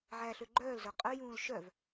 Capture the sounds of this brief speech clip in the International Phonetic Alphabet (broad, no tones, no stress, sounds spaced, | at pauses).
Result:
ʕ æ ɬ ø ɡ͡ǃ œː l z œ qʼ œ j ũː l ʃ œ v